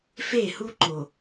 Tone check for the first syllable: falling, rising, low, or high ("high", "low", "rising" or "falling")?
falling